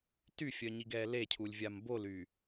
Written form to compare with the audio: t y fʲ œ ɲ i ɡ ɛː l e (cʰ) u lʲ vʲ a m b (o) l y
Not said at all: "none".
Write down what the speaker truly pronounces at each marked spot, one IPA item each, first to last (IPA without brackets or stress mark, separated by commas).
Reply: cʰ, o